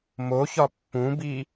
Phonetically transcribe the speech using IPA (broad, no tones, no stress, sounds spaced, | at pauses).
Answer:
m o ç ɒ pː ũ b i